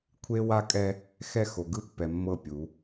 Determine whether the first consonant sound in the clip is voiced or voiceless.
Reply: voiceless